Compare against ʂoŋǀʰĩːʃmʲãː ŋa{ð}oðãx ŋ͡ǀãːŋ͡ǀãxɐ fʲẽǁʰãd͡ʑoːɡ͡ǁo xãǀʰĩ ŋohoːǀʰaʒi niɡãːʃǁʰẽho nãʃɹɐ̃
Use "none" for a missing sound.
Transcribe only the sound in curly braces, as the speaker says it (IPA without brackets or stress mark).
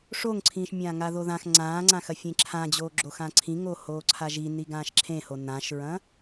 ð